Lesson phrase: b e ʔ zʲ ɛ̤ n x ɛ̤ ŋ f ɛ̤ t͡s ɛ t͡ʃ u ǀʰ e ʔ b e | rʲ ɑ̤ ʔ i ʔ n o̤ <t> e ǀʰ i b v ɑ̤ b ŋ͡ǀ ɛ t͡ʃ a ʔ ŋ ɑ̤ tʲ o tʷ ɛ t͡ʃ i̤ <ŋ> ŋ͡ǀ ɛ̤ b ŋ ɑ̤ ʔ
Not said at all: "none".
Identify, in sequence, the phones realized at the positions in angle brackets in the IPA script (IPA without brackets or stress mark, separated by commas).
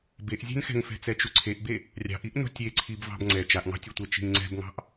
tʲ, ŋ